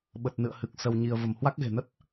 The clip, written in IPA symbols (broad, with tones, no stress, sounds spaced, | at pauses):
ɓ ə˨˩ t̚ n ɨ̰˧˨ ə̯ h ɨ˨˩ k̚ s ə˧ w ɲ i˧ ə̯ v ə˧˩ m h w a˦˥ k̚ ɣ e̤˨˩ n ə˦˥ t̚